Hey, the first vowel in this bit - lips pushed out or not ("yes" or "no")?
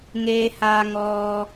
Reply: no